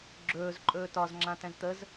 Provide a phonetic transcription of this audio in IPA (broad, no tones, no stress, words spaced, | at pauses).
ɡ͡ǁɵːz ǃʼɵːtɒz ŋ͡ǁãtɛ̃zt̪əz